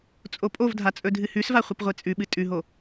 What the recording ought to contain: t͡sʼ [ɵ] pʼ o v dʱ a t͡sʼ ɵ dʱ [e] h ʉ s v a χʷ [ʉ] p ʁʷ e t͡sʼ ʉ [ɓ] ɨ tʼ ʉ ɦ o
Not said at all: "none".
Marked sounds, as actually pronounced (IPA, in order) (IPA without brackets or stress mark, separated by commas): o, ɨ, ɨ, ɓ